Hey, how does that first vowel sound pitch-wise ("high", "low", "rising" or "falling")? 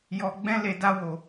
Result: low